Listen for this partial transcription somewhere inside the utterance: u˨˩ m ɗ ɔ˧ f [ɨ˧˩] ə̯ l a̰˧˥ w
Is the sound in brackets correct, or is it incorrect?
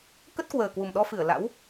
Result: correct